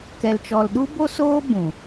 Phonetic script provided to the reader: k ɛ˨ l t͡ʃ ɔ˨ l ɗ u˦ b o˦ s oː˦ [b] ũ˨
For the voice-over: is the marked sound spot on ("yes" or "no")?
yes